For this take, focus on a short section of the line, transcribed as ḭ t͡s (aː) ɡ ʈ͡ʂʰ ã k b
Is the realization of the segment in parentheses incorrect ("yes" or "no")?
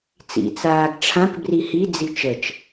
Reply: no